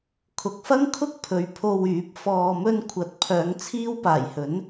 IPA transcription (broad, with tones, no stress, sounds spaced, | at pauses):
kʰ ʊ˨ k̚ f ɐ˥ ŋ kʰ ʊ˥ k̚ pʰ ɵ˨˧ ɥ pʰ o˧ w yː˨˥ p̚ f ɔː˨ m ɵ˧ n kʷʰ ɐ˨˥ t̚ pʰ œː˨˧ ŋ t͡sʰ iː˥ w p aː˨˩ j h ɵ˨˥ n